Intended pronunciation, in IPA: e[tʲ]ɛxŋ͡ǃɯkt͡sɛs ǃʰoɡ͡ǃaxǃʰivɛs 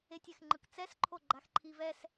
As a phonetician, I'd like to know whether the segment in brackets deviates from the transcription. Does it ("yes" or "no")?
no